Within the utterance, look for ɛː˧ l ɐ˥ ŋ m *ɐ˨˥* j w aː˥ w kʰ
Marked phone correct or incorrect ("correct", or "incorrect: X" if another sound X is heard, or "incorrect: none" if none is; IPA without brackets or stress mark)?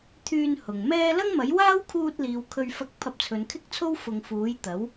correct